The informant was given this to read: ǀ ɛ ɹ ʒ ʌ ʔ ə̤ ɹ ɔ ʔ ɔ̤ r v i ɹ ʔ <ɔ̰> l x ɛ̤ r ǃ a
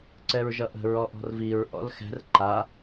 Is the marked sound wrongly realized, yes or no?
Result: no